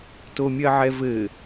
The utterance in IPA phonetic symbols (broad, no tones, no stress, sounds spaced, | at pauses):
t o mʲ ɜ ʕ ɛ v ɘ